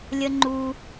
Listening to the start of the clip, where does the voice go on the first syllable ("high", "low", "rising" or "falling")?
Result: high